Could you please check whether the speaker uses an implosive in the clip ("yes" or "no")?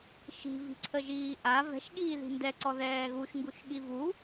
yes